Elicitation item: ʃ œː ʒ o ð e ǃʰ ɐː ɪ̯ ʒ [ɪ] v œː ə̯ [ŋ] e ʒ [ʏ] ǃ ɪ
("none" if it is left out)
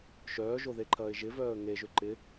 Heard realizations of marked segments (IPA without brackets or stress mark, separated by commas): ɪ, ŋ, ʏ